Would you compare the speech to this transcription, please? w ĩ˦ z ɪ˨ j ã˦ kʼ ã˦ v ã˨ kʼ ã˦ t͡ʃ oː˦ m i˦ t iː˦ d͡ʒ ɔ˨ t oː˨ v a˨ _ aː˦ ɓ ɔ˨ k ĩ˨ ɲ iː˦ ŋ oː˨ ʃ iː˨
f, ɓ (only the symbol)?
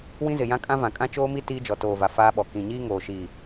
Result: f